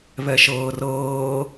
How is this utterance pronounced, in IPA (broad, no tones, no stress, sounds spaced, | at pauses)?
β ɛ ʃ ɤː r ɤː